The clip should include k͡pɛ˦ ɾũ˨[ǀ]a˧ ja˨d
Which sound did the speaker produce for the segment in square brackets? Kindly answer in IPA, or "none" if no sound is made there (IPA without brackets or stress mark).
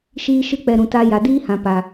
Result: t